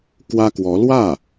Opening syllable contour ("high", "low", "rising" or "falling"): high